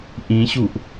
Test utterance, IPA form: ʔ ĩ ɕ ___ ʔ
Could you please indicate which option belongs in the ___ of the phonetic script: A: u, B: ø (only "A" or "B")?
A